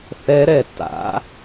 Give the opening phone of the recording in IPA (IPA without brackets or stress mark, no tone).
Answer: θ